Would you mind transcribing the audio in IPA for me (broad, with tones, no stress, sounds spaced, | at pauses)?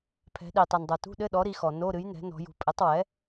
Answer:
pʰ ɛ̤˩˧ ɗ i˩ tˤ ɛ˩ n dˤ o˩ t ṳ˧˥˧ ɗ ɘ˧˥˧ ɗ ɔ˩˥ ɾ i˩˧ x ɔ˩ n o˧˥˧ ɾ ɨ˩˥ j n ɛ̤˩˥ n ɔ̤˩˧ j ṳ˩˧ pʼ ɘ˩˥ tˤ w ɛ˩˥